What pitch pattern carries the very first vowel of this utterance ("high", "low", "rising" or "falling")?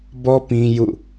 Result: high